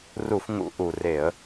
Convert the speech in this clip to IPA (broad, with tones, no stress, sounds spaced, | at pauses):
r u˧˩˧ f ŋ ṵ˨˦ ʔ u˩ r e˧˩˧ ə̯